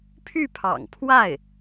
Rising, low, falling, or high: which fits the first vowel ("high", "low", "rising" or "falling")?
falling